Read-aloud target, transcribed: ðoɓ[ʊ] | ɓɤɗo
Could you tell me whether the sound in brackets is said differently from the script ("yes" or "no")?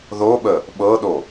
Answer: yes